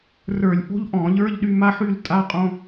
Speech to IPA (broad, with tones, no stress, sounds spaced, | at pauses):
r ə˞˧˩˧ lʲ ʔ o̤˥ ʎ ʔ ɔ̃˧˩˧ ʎ ə˞˧˥˧ ʎ ɗ y˥˧ m a˥ ħ y˥˧ l tʼ a˧˥˧ qʼ õ˧˥˧